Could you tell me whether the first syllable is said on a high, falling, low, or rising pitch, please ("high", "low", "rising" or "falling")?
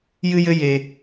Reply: high